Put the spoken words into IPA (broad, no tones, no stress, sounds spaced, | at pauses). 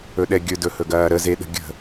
ɵ ɗ ɛ ɡʲ ɵ d ɵ h ɵ ɡ ɐː ɾ ə z e ɗ ə̤ ɡʲ ə̤